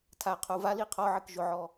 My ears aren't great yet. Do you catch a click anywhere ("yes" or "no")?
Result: no